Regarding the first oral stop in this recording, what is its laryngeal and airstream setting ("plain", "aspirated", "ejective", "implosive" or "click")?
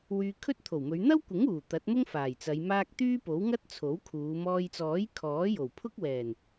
aspirated